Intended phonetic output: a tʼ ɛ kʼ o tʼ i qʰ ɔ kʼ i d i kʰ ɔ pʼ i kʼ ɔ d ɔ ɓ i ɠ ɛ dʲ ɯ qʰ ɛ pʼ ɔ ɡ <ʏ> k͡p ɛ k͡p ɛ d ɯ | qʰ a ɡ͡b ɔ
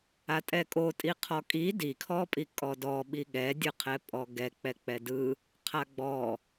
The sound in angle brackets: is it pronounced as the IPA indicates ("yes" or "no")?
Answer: no